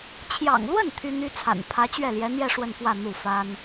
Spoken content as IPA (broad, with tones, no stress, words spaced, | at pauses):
t͡ɕʰjɑ̰˨˩ŋlwə˥˩n t̪ʰy˥n̪y˥t͡sʰa̰˨˩n pʰä˧˥ t͡ɕɥɛ˥˩ljɛ˧˥n̪jɛ˥˧ ʂwə˥˧nfwä˥˧ n̪u˥˩fa˥n